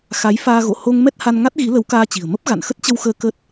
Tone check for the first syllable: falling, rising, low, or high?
rising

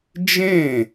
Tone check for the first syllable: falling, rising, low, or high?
falling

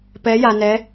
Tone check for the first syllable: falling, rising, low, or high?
rising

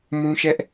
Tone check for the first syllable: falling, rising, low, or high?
high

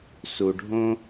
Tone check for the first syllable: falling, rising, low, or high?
low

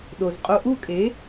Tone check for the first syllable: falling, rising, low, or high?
low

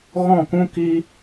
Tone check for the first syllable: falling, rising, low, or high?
falling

